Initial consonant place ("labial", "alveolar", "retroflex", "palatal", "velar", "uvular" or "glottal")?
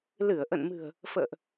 alveolar